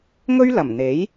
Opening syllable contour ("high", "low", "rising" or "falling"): high